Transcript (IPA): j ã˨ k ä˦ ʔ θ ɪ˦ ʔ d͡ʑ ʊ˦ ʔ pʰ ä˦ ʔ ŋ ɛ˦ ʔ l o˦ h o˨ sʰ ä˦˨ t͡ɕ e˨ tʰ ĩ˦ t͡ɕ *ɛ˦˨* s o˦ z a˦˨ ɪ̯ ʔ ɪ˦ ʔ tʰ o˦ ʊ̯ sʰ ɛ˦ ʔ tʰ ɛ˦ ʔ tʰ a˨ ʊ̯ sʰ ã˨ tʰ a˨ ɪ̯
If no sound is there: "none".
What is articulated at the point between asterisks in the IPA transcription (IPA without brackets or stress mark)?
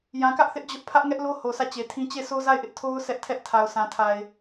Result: e˦˨